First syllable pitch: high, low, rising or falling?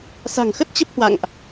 low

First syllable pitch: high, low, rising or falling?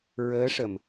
rising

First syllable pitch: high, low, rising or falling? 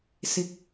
rising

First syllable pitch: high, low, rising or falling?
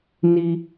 high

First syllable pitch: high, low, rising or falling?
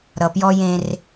low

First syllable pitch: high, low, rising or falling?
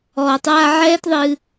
low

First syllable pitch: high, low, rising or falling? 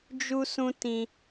high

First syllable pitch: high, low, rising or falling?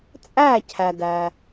falling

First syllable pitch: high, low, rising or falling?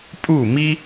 falling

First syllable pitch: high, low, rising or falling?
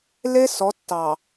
high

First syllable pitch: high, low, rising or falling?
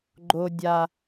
low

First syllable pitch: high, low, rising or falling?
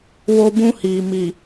high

